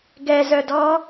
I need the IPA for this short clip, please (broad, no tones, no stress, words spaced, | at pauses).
ɡɛzœdɔː